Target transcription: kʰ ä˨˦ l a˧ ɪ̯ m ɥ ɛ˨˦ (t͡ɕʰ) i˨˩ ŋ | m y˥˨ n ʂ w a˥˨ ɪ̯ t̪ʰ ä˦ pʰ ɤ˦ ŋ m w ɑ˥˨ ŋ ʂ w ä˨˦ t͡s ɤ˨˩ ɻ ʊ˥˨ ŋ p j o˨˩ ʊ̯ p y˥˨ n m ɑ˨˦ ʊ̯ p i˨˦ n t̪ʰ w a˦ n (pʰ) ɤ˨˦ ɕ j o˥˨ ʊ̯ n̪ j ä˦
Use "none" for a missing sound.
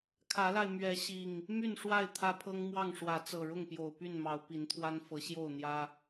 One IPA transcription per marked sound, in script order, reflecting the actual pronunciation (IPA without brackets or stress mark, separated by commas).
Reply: ɕ, f